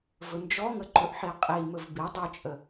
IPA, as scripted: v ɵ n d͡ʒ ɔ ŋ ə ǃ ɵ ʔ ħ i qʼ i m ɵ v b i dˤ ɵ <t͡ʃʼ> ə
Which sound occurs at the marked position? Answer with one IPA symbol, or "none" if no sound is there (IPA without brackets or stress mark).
t͡ʃʼ